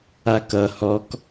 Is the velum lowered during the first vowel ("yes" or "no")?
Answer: no